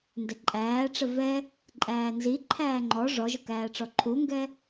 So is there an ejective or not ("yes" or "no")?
yes